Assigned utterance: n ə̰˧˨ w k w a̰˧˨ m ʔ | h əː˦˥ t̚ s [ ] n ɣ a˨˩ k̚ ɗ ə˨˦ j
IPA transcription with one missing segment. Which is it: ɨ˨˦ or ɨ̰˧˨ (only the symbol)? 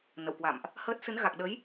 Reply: ɨ˨˦